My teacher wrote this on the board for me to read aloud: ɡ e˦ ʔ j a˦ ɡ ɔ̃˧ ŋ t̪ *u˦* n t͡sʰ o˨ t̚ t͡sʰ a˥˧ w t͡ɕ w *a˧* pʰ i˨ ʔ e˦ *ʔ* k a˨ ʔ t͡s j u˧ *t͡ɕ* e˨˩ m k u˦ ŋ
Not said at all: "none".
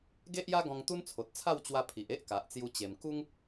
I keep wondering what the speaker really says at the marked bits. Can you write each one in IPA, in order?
u˦, a˧, ʔ, t͡ɕ

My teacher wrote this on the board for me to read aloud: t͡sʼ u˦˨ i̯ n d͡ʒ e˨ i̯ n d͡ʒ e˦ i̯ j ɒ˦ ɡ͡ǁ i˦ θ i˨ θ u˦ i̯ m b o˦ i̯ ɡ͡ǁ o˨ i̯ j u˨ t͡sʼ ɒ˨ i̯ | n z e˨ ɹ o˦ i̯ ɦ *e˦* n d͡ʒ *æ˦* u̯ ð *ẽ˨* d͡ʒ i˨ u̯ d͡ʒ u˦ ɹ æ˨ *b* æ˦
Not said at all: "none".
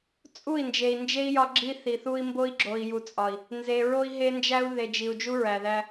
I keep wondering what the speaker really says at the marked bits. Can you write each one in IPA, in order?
e˦, æ˦, e˨, ð

